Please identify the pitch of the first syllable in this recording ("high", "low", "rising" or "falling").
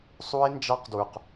high